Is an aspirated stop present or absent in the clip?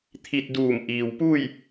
present